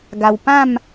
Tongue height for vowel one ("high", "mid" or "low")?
low